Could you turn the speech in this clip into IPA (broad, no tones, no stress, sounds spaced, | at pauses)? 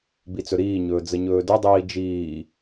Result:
b i t͡s ɵ ɾ iː ɲ ɵː d͡z ə ɲ ɵː d ɵ dˤ iː d͡ʒ iː